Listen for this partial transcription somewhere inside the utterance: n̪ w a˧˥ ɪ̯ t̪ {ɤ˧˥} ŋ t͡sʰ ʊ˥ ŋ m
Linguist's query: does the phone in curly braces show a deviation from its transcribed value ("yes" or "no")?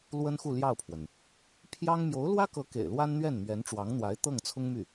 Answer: yes